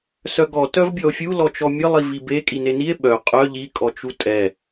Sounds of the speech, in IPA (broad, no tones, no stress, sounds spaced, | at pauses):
s œ ɡ ɔ t œ v bʲ ɔ o̯ fʲ u l ɔ t͡ʃ ɔ mʲ ə lˠ i v i b e kʼ i n e n i e̯ ɓ œ qʼ œ ʎ i kʼ ɔ t͡ʃ u tʼ ɛ